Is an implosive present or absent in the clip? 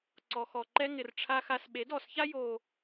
present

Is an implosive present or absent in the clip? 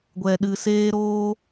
present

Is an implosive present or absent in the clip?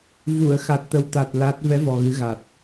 absent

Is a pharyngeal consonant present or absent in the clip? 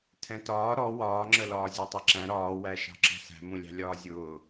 absent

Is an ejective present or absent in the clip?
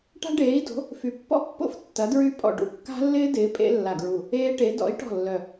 present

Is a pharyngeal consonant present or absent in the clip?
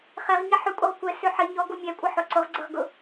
present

